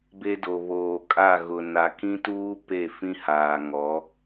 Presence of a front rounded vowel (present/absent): absent